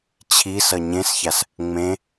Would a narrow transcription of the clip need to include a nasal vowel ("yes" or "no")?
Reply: yes